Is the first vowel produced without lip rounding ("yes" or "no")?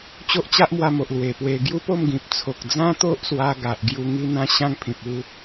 no